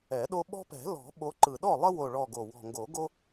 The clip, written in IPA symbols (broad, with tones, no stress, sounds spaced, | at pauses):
ɛ˨˩˦ ɗ o˦ ɓ ɔ̤˦ p ɛ̤˨˩˦ l ɔ̤˨˩˦ ɓ o˨˦ ǃ ɯ˨˩ ɗ ɔ˥˨ lˠ ə˦ w o˨˩ ɭ ɔ˨˩ ɡ o˨˩ w ɔ̤˨˩ ŋ ɡ o˨˩˦ ɡ o˦